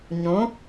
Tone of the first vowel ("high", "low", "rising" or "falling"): rising